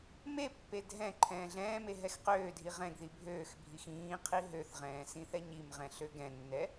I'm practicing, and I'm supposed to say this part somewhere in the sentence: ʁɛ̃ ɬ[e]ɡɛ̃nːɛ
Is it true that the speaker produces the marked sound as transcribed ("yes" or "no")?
no